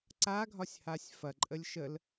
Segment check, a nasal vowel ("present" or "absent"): absent